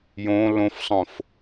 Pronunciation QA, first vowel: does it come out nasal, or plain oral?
nasal